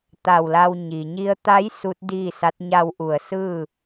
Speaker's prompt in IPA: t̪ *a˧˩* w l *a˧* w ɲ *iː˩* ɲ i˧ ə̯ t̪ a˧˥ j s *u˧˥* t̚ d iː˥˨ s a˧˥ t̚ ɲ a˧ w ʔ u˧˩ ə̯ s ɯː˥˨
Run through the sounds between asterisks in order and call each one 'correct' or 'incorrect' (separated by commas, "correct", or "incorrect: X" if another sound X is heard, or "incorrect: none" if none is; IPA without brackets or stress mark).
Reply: correct, correct, incorrect: i˩, correct